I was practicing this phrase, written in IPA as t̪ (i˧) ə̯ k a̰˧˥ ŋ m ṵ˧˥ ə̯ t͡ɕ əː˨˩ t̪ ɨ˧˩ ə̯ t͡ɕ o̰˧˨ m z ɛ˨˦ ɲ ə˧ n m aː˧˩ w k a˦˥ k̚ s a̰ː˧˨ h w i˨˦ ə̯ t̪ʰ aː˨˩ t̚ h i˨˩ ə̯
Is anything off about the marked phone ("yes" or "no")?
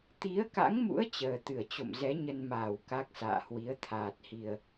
yes